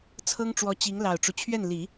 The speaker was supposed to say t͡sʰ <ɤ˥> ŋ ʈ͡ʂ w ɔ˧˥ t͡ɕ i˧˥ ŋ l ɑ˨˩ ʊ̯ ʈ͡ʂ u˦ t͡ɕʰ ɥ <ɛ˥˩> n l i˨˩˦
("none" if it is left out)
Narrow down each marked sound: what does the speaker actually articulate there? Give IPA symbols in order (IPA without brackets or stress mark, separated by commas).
ɤ˥, ɛ˥˩